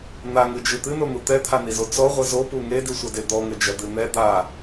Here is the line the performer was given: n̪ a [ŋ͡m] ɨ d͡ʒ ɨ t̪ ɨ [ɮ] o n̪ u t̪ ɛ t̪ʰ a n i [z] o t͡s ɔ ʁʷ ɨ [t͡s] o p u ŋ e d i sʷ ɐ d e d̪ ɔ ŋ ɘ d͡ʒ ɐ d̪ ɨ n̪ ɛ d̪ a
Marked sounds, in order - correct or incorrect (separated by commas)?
incorrect, incorrect, correct, incorrect